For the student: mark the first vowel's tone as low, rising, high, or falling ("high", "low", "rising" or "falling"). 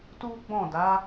high